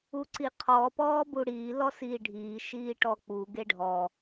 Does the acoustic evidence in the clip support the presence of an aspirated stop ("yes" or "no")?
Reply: yes